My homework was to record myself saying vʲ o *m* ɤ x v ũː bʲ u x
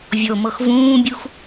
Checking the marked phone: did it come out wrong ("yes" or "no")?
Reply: no